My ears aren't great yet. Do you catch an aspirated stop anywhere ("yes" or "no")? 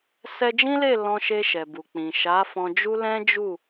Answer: no